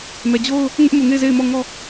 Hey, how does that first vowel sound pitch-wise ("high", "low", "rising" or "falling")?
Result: low